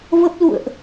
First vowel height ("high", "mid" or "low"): mid